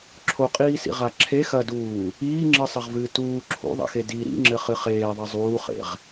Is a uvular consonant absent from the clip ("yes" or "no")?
no